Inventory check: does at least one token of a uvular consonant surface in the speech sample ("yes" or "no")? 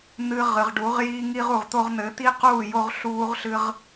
yes